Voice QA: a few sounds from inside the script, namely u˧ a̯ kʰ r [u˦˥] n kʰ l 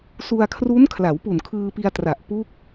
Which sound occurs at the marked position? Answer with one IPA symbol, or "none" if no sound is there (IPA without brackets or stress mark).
u˦˥